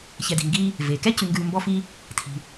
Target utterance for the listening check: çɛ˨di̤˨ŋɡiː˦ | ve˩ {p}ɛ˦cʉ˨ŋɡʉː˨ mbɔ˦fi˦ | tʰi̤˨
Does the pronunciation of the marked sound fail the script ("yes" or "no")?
yes